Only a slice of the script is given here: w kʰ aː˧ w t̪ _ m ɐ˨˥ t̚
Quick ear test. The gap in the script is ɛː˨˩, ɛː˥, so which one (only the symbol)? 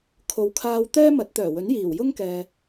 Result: ɛː˥